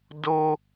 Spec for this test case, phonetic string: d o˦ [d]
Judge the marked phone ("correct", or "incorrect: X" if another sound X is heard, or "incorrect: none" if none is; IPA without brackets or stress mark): incorrect: none